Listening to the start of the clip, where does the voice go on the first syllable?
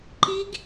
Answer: rising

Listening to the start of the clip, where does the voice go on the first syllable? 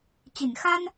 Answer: low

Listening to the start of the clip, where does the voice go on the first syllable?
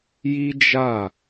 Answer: high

